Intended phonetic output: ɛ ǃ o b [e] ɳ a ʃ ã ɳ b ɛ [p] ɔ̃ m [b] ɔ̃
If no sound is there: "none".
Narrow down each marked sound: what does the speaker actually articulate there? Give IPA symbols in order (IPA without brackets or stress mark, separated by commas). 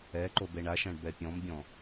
e, pʲ, bʲ